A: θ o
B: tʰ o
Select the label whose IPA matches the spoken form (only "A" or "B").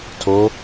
B